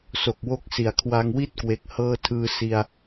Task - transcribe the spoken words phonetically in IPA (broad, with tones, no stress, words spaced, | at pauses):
so˨˩k̚wo˦˥k̚si˩˦a̯ kʰwa˧ŋwi˥˩t̚kwe˨˩k̚ hɤː˧tʰɯː˧si˧a̯